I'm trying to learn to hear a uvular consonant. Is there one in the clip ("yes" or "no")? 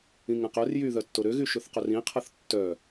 yes